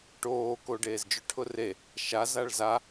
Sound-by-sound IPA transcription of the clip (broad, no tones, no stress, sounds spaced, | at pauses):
ʈ oː k o ɖ eː z d͡ʒ ʊ ʈʰ ʊ r e | ʃ a z a ɭ z a